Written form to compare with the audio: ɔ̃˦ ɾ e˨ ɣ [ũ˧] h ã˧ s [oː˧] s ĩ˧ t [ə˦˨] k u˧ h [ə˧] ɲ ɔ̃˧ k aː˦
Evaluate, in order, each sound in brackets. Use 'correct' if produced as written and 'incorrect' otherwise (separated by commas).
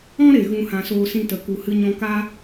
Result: correct, correct, incorrect, incorrect